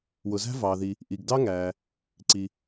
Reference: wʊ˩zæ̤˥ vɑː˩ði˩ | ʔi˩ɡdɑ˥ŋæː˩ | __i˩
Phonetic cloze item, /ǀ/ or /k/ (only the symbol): ǀ